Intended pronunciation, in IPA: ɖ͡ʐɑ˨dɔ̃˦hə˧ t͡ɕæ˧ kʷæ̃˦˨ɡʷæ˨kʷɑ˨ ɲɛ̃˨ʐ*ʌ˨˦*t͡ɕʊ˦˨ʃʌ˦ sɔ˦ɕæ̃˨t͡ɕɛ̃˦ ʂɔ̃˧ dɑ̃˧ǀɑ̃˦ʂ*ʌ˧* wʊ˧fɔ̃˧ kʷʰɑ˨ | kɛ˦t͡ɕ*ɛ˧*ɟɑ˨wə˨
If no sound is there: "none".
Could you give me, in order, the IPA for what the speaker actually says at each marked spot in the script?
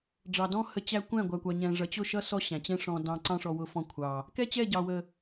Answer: ʌ˨, ɔ˧, ɛ˦˨

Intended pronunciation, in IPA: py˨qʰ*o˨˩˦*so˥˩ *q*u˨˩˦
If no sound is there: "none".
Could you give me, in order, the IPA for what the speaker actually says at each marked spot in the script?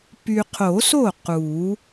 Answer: o˨˩˦, q

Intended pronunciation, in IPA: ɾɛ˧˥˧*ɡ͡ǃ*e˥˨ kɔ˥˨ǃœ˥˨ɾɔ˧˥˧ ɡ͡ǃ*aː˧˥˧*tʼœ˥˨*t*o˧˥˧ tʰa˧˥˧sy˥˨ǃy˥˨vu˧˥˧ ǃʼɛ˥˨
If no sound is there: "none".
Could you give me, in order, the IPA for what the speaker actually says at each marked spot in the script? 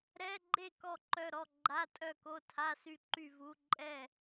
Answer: ɡ͡ǃ, a˧˥˧, k

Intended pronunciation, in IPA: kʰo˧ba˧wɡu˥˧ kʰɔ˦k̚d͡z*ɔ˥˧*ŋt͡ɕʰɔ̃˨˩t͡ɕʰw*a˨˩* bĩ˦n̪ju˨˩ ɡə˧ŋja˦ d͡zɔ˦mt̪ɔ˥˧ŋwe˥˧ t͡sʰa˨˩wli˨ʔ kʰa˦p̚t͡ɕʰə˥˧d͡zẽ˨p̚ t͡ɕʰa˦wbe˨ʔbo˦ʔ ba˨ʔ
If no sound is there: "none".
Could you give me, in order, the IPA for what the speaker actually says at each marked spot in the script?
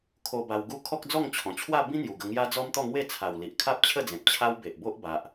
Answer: ɔ˥˧, a˥˧

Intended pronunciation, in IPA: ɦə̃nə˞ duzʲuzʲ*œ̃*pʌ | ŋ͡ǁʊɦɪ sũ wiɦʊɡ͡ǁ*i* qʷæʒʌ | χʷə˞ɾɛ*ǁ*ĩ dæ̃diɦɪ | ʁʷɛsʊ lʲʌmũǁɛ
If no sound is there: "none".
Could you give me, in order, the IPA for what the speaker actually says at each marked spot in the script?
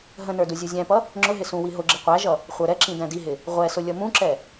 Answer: æ̃, ɪ, ǁ

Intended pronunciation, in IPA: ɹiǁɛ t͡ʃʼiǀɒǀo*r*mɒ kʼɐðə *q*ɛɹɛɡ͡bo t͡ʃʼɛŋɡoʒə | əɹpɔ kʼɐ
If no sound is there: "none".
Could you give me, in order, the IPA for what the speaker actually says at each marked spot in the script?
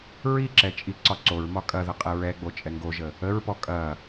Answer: ɹ, qʼ

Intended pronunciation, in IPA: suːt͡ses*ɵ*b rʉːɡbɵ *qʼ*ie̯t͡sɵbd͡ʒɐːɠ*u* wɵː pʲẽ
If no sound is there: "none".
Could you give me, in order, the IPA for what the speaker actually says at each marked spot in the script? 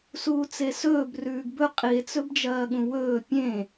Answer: ɵː, qʼ, ũ

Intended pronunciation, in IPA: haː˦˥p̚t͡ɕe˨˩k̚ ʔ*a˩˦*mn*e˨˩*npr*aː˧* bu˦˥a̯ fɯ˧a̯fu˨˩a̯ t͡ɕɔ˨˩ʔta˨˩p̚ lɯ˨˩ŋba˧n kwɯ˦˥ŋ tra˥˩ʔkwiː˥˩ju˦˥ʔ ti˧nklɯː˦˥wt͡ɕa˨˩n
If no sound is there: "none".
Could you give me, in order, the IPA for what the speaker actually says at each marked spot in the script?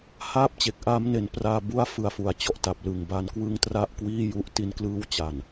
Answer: a˦˥, e˨˩, aː˧

